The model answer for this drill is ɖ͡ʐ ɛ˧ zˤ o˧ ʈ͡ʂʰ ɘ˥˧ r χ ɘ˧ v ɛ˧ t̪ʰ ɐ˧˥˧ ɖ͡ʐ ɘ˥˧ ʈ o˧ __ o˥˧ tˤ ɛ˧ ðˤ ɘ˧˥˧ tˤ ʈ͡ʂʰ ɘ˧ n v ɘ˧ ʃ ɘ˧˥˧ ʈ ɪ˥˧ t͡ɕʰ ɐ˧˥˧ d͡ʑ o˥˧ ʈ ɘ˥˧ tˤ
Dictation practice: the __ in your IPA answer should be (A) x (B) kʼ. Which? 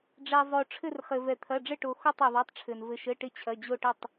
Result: A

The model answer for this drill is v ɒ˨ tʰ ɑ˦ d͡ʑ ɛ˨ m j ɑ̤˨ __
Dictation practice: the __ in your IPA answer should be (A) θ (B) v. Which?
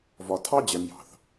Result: A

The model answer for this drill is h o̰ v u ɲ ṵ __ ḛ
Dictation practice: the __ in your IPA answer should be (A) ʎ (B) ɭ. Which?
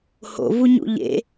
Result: A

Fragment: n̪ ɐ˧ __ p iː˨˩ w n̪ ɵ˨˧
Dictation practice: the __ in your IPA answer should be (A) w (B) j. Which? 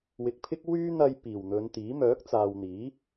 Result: B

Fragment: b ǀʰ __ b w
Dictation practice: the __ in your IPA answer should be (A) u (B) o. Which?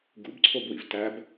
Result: B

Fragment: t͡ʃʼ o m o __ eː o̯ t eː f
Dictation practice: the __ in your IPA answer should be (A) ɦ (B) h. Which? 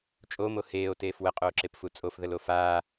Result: B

